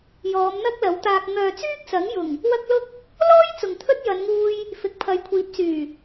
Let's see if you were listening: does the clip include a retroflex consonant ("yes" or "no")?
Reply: no